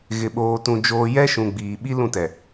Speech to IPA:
ɣ ɪ˨ ɓ oː˨ t ũ˨ d͡ʒ oː˨ j ɛ˦ ʃ ũ˨ ɡ͡b iː˨ ɓ i˦ l ũ˦˨ t ɛ˨

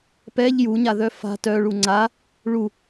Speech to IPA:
p ɛ ʎ j u ɲ a ð œ f a̤ t œ ɭ u ŋ͡ǀ a | ɭ u

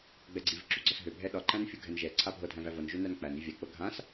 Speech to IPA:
ɡ͡b ɛ ɡ͡ǀ i v ǁ ṳ ɡ͡ǀ ɒ s ɦ ø bʱ ɛ ɗ ɒ ǃ æ̃ n fʲ u ɡʱ ɛ n ʒ ɛ ǀʰ a bʱ ɤ dʱ æ̃ v æ v ɤ n ʒ ø n æ n k͡p æ n i vʲ a k͡p ɤ ɡʱ ã s

